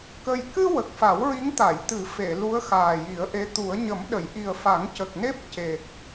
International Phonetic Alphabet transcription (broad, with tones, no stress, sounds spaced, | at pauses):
k ə˧ j k ɨ˧ w ə˨˩ k̚ f a˨˩˦ w ɹ i˧˥ ŋ t̪ a˨˩˨ j t̪ ɨ˨˩˦ f e˨˩˨ l u˧˥ ə̯ x aː˨˩ j i˨˩˦ ə̯ ʔ e˧˥ t̪ u˨˩˦ ə̯ ɲ ə˨˩˦ m ɗ ə˨˩˨ j ʔ i˨˩ ə̯ f a˨˩˦ ŋ c ə˨˩ k̚ n e˦˥ p̚ c e˨˩ k̚